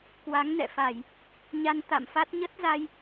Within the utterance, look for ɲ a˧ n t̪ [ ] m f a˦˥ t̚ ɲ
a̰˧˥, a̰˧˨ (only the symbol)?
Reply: a̰˧˨